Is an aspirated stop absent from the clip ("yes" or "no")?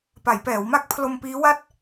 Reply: no